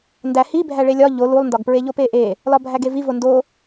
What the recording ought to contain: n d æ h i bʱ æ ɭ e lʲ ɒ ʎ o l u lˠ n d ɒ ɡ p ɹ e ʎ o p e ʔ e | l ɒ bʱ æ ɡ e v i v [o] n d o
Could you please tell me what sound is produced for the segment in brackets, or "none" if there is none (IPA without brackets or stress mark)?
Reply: o